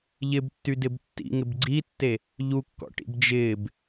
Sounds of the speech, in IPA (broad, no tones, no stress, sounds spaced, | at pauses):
ʎ ɪ b tː y d ɪ b tː ḭ ŋ ɪ b ɡ͡ǀ i tː e | ʎ u kː ɔ̰ ʈ ḭ b d͡ʒ ɪː b